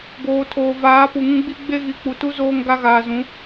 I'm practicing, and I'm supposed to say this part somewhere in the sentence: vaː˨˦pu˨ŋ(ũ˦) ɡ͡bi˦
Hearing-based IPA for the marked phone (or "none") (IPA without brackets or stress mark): ũ˦